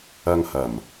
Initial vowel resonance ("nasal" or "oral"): oral